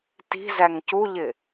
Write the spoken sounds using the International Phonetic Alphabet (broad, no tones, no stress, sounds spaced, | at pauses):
t i̤ z æ ŋ c u ʎ ɪ